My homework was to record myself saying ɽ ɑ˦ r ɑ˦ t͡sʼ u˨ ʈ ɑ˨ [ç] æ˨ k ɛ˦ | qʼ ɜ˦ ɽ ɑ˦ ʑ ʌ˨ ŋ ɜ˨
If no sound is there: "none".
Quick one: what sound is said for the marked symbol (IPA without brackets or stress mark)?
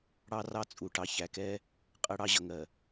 ç